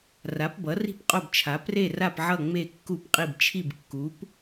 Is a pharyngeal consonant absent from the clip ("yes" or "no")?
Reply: no